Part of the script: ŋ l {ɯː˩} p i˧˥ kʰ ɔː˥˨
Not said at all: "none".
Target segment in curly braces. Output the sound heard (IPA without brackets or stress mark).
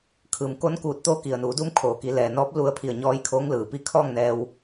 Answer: ɯː˩